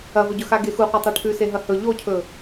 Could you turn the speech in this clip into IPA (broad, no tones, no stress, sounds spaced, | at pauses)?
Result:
ɐ v ɵ ɟ ɵ x a ɡ e x u qʷ a tˤ ɐ ʈʰ ʉ s e ɦ ɐ h ɵ ʎ o cʰ ɵ